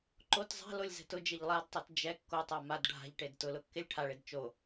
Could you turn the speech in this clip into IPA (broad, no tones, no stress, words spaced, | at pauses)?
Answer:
ǃot zˤa̤lolʲzɛ̤ tʊd͡ʒeʎ lˠadtˤɛt d͡ʒɛ kːotˤa mad ɖʱa̤ʎʈed tʊlʊkːɪlʲ ʈʰaɭed t͡ʃo